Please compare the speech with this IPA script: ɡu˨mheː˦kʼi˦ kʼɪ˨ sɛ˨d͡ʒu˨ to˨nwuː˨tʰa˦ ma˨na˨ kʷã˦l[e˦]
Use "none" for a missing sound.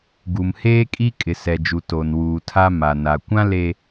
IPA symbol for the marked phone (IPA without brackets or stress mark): e˨